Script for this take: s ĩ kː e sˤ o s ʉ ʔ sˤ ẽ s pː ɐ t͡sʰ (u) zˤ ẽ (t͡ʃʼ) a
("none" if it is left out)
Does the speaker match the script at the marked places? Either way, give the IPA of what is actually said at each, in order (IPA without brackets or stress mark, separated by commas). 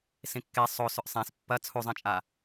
u, t͡ʃʼ